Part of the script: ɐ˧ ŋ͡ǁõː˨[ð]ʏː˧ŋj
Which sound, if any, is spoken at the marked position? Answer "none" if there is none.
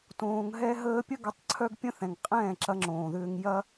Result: ð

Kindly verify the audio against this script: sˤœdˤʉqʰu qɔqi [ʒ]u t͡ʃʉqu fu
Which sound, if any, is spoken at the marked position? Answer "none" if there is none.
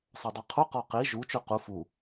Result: ʒ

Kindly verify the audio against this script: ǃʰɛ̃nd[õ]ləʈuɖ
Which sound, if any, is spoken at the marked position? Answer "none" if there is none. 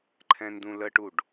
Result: ũ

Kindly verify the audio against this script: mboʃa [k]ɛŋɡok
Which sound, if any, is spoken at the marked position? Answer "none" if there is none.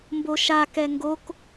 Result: k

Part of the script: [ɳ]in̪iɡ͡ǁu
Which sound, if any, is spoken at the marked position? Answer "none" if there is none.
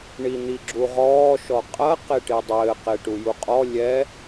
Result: ɳ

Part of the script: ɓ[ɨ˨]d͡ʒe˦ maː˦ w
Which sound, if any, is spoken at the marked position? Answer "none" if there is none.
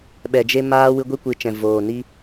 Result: ɛ˨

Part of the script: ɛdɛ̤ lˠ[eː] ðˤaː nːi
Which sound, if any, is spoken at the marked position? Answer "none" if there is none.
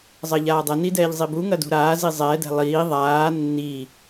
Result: iː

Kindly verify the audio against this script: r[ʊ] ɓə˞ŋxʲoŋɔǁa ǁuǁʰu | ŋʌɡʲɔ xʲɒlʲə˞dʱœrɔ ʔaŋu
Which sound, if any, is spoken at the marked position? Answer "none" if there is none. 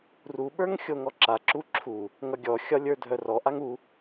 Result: u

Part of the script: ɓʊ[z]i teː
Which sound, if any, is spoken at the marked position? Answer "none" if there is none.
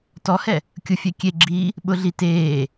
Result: ɮ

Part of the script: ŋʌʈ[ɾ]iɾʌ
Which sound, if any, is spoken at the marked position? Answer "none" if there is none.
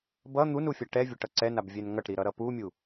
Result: ɾ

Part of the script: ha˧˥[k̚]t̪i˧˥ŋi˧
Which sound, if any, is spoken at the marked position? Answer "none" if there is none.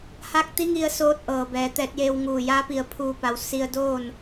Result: k̚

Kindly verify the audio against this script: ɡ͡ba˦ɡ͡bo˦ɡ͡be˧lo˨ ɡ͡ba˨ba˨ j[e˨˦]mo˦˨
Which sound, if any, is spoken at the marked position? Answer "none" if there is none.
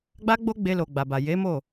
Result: e˨˦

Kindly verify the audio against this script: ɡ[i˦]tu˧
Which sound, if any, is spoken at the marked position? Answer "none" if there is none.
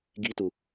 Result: i˦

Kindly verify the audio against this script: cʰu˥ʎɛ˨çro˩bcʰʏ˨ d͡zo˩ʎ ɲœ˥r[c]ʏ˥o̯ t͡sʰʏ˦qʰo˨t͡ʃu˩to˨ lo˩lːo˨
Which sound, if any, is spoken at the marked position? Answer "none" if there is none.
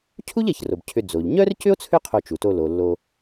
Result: c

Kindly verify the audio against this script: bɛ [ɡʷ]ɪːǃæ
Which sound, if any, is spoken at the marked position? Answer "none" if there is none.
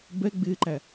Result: ɡ͡b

